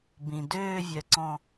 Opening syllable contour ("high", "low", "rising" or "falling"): low